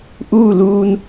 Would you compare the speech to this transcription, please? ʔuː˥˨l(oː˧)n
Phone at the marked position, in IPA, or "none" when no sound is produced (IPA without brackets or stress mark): uː˧